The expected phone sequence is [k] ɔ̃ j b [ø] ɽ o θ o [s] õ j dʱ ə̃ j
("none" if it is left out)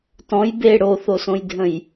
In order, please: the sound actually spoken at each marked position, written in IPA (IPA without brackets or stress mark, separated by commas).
t, e, s